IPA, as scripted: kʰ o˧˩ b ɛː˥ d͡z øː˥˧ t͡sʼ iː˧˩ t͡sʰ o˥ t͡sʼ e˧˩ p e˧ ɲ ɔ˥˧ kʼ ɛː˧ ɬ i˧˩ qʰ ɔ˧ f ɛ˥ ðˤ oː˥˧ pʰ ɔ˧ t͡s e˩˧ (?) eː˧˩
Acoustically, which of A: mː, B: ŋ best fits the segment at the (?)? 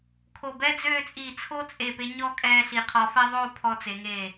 B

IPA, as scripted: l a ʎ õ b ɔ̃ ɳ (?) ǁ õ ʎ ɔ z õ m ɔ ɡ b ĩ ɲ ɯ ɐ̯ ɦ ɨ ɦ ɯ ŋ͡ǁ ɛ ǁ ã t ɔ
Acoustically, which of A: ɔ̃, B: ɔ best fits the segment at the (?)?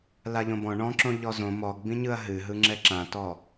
A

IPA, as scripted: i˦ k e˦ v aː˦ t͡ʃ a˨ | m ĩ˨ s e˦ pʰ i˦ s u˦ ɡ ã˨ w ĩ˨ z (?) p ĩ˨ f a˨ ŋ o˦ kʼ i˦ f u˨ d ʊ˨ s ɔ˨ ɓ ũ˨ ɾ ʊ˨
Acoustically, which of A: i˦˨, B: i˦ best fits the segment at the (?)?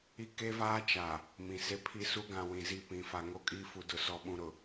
A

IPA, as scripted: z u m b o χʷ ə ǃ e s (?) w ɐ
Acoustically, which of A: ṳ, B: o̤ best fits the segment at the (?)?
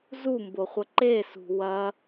A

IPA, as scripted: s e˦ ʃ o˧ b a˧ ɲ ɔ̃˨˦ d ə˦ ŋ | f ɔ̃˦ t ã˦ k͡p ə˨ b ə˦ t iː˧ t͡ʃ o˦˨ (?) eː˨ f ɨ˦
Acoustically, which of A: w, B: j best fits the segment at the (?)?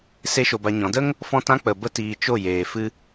B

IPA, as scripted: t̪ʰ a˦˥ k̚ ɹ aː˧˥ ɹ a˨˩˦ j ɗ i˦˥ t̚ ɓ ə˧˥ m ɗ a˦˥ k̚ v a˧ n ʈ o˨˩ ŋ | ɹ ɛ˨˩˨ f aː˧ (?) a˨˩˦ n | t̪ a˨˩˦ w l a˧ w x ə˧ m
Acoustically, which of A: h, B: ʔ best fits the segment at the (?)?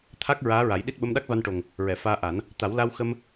B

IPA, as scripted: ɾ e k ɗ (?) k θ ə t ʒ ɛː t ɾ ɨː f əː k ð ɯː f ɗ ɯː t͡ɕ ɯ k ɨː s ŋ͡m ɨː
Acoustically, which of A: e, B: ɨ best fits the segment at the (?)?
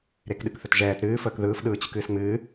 B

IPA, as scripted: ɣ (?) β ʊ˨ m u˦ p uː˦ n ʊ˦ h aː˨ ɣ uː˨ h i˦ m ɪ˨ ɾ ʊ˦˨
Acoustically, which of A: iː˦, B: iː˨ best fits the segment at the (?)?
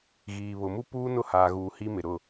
B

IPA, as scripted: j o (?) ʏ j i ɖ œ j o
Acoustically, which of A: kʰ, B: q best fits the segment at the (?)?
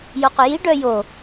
B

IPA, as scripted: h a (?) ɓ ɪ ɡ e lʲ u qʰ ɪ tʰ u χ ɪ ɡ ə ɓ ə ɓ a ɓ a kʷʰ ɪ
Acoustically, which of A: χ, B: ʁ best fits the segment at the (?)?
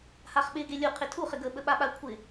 A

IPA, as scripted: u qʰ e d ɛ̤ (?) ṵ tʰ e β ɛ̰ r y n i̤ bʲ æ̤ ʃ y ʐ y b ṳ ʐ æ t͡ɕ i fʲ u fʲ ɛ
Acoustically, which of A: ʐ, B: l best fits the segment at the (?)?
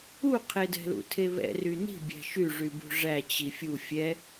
B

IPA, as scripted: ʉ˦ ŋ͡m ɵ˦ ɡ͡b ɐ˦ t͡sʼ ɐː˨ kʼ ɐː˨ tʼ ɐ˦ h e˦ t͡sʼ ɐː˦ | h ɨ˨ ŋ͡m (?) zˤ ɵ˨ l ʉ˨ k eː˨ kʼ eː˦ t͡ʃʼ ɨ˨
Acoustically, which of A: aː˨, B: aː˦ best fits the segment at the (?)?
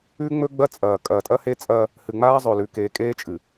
B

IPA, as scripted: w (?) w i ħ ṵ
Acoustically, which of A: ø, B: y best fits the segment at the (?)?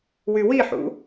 B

